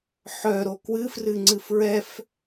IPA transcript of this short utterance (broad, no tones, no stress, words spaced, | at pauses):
ħœɾo kwɨfrɨŋ͡ǀɨ fɹɛf